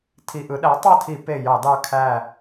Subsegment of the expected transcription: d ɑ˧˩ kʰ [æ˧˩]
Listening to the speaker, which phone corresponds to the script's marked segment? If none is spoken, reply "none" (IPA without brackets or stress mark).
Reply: æ˧˩